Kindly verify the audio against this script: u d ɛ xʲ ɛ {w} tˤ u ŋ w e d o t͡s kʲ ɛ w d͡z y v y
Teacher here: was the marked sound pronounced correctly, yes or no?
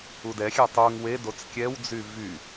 no